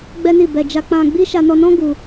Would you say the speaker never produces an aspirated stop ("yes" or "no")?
yes